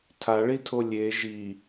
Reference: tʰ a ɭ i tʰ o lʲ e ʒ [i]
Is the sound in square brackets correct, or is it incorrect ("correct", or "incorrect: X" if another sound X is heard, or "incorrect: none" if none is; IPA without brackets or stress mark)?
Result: correct